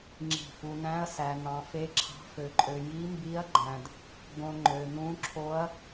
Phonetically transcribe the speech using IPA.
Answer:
ŋ͡ǁi̤˧˩fu˧ næ̃˦˥ɐ̯sæ˧ n̪ɑ̃˧fe˦˥ǁʰɑ̤˦˥ fø˧ǃʼø˧ ji˦˥mbi˦˥ɐ̯ɡ͡ǃæ̃˧d | ɡõ˧ ŋ͡ǃø˧n̪ũ˦˥ǁʰo˦˥ɐ̯

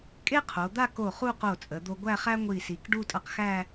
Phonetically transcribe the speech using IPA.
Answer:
kʼe˥qʰo˩˧d̪a˥˧ko˧˩ χu˥˧qo˧˩t͡sʼə˩˧d̪o˧ ɡʷæ˥˧χæ˥ ŋʷi˧˩si˩˧k ɖu˥˧tʼʌ˧qxæ˥˧

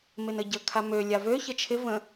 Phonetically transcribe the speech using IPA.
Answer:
mɪnəɟə kʰamø lʲavø çət͡ʃʰɪ və̃

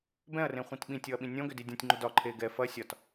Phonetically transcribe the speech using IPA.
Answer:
bɛ̃ɐ̯rẽχʷĩt ɓĩtʲɔɐ̯ɓĩ nʲɔ̃ɡʏdi dʲɔ̃tʲŋ͡ǃʏ dɒ ǃʰe ɡɛ fɐ sʲɒt

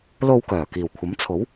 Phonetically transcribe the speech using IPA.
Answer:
lo˧wkœː˨˩ kiː˨˩wkʷʰɐ˨˥m t͡sʰo˨˥w

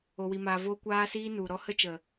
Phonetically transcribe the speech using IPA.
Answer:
o˧wi˧maː˧ vo˦ kʷaː˦ siː˦nu˨ɾɔ˦ hə˦t͡ʃə˨

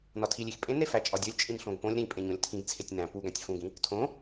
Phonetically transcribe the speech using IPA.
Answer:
nɒtʰilʲix pʼẽnɾe fæt͡ʃʼɒdʲolʲ t͡ʃʼĩnɬõɡpõlʲ ɾĩpʼẽɲõlʲ tʰĩɡt͡sʰetʲ næ̃ pu ɡæ̃tʲfũɡĩ | tʰõ

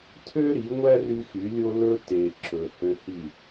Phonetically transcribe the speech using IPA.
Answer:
tʰø˦ɾi˨˦ ŋʷæ˦ry˧ xy˨˦lʲo˦ lɵ˦ te˨ ǁɵ˨ hø˧hi˦˨

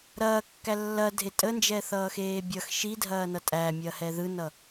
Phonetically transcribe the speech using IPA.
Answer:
ɾɐːkːæ lːɐdʱe tʼənd͡ʒɛθʌːxeː bʲʌx ʃidʱɐːnʌ tʼæmʲɐhɛ ðɯnʌ

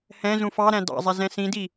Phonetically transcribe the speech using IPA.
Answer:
hɛ̃ zũfɑɾæ̃ dɑ̰zˤɛ zɛ̃sĩdi

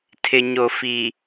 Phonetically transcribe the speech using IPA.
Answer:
tʰɪ˨ɲo˨fi˨

